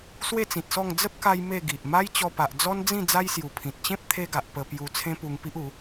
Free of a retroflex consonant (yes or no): yes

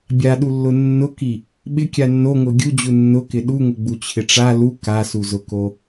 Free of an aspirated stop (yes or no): no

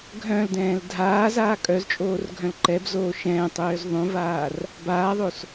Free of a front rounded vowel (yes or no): no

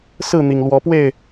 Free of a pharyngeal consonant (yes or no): yes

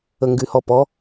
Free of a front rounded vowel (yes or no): no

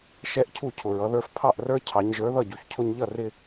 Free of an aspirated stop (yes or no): no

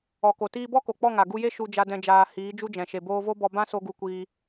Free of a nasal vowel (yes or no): no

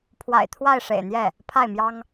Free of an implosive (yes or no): yes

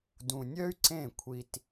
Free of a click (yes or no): no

